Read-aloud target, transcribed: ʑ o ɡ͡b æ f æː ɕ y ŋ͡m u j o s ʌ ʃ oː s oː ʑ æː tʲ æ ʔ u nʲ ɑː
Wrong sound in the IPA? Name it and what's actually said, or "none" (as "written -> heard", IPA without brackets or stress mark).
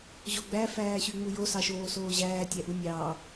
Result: ʌ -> ɑ